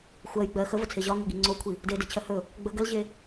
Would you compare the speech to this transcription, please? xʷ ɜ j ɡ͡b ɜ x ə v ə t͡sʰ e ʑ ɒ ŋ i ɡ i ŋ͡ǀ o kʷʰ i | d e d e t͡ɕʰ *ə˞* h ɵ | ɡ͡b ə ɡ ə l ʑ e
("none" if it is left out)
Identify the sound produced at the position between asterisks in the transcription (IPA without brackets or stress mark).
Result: ɜ